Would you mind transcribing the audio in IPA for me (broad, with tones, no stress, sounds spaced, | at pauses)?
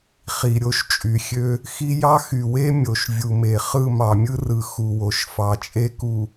χ i˨ ɾʲ o˦ ʃ t͡ʃʼ y˨ xʲ ø˦ | x i˦ j ɑ˦ x y˨ w e˦ mʲ o˨ ʃ vʲ u˨ m e˨ χ ɯ˦˨ m ɑ˨ mʲ ɯ˦ r ɯ˨ x u˨ w o˨ ʃ f ɑ˨ t͡ʃʼ e˦ k u˨